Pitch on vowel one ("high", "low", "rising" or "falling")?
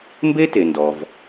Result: high